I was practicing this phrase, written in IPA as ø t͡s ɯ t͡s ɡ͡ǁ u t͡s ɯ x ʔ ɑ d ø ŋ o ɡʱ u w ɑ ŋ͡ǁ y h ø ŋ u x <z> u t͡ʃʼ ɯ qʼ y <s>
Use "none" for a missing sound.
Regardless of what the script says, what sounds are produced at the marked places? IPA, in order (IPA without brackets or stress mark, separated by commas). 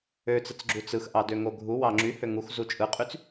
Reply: z, t͡s